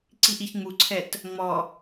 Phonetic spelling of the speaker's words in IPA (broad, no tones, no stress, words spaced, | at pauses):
ǀiʔiçŋ͡muǀʰɛt | ŋ͡mɔ